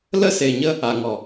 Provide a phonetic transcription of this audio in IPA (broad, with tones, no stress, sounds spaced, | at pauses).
l ə˦ s e˨ ɲ ə˦ | a˨ ŋ ɔ˨